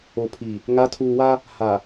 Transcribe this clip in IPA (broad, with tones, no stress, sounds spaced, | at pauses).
o˨ pʰ i˨ | ŋ a˨˦ tʰ uː˨ w a˦ | h a˨